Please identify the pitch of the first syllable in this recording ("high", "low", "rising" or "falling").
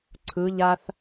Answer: rising